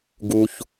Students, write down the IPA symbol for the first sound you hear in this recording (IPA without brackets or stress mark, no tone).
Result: ɡ